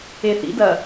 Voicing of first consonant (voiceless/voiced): voiceless